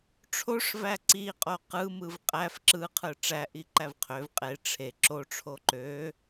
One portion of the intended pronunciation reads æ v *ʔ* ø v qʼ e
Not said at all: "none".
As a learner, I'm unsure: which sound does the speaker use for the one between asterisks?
qʰ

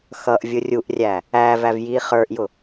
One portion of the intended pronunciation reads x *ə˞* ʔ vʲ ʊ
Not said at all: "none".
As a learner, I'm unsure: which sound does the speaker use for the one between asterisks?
ʌ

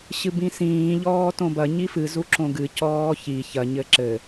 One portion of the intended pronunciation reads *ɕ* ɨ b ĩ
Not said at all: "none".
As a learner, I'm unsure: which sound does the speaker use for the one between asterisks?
ɕ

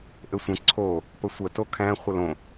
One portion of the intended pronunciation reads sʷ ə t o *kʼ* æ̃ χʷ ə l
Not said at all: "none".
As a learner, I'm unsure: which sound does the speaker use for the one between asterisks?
kʰ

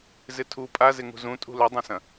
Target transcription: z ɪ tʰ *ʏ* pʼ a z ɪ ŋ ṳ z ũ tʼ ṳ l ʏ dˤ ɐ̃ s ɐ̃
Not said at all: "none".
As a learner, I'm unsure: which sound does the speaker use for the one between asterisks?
u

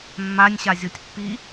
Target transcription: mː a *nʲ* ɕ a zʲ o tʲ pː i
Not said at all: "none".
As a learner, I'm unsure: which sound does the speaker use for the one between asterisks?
nʲ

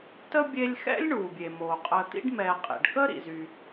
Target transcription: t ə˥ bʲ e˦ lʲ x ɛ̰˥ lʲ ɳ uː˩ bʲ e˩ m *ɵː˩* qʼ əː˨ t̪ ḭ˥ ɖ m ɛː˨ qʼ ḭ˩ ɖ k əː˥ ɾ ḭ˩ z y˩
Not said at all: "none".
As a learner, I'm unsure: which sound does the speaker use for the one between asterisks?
oː˩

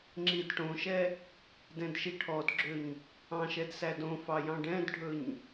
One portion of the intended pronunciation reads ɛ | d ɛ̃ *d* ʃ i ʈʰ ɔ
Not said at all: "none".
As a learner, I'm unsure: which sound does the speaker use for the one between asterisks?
d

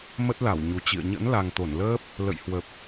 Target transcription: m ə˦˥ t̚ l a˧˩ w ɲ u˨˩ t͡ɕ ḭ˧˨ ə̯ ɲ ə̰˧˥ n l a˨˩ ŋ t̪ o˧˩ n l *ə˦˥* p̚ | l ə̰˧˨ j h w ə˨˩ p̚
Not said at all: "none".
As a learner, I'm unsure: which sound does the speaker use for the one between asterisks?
əː˦˥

